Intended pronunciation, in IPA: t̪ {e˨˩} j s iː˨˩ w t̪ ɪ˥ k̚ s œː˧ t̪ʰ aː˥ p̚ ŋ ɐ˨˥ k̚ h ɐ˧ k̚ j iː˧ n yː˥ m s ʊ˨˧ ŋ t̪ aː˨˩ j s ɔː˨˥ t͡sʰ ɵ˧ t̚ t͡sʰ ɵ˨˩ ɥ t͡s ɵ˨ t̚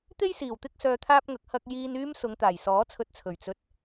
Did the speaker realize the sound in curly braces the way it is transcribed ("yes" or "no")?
no